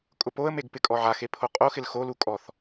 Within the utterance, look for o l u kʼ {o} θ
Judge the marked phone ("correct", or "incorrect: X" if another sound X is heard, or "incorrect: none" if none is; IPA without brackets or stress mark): incorrect: ɔ